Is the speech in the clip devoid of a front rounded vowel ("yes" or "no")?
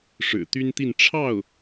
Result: no